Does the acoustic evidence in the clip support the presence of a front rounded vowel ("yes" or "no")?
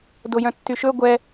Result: yes